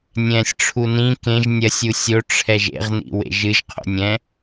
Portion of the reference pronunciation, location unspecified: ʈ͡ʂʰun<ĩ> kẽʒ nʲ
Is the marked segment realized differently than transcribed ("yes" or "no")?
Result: no